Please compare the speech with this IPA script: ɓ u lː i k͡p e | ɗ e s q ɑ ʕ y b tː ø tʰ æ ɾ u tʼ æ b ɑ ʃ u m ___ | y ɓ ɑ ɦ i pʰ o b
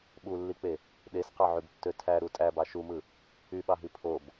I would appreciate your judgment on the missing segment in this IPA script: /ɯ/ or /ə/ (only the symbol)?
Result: ɯ